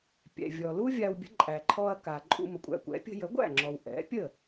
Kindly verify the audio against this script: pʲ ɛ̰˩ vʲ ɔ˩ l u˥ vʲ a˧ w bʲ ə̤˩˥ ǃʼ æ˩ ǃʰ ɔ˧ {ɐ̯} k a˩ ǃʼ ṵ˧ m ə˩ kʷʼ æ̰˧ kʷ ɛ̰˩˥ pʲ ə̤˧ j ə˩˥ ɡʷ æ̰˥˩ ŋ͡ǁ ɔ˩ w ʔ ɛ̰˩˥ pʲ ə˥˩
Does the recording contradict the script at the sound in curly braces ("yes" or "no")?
no